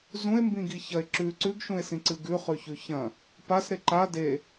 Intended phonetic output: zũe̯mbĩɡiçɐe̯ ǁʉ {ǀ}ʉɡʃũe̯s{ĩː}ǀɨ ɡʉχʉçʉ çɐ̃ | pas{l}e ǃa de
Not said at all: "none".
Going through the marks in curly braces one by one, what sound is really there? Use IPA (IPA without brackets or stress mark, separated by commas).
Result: ǀ, ĩ, ɾ